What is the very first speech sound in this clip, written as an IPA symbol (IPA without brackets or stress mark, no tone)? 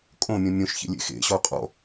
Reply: kʼ